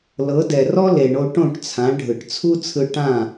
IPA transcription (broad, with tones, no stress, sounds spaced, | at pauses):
l ɤ˩˥ d ɛ˩ r ɔ˥ l e˩ ɳ o˧ ʈ õ˥˩ ʈ t͡sʰ ã˩˥ ɖʱ ɯ˩ ʈ t͡sʰ u˥ t͡sʰ ɯ˧ ʈ ã˥˩